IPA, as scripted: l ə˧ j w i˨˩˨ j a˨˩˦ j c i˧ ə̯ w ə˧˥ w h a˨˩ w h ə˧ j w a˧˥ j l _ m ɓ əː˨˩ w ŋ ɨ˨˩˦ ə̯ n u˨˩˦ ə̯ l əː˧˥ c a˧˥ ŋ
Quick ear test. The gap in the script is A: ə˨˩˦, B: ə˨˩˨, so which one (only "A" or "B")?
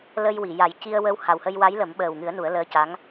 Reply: A